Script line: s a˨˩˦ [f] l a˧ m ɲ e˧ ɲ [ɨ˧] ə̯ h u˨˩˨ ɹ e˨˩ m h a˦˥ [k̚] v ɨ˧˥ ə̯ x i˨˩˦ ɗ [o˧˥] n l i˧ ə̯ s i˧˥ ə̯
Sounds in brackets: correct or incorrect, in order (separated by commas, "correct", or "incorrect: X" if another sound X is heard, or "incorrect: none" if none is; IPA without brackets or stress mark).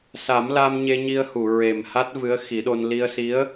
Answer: incorrect: m, incorrect: i˧, incorrect: t̚, incorrect: o˧